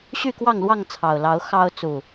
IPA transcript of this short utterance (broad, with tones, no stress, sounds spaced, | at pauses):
ɕ y˥˨ k w ɑ˥˨ ŋ l w ɑ˥˨ ŋ t͡sʰ ɑ˨˩ ʊ̯ l ɑ˨˦ ʊ̯ x ɑ˦ ʊ̯ t͡s u˨˩